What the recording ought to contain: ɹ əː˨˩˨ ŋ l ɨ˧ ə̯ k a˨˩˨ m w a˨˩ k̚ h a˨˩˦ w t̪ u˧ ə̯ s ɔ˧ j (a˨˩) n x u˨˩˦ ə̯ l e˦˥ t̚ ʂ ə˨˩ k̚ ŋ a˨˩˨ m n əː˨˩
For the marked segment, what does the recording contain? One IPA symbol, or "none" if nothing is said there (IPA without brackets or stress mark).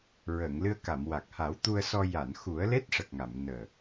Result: a˨˩˨